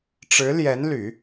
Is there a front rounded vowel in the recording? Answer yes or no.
yes